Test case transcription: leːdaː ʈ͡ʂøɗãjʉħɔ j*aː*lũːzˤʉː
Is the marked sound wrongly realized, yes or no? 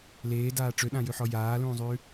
no